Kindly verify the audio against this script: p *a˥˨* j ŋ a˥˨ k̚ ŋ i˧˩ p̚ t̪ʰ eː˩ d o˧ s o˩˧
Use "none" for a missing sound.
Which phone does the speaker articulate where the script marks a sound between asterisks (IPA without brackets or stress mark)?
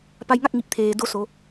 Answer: a˧